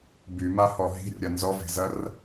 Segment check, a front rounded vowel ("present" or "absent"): present